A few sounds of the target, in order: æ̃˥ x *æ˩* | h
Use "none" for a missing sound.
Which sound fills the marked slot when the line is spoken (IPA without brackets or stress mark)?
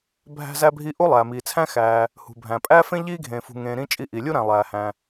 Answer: æː˩